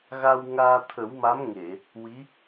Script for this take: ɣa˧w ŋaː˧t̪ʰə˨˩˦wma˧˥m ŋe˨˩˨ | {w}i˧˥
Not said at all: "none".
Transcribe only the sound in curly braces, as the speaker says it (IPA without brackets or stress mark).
w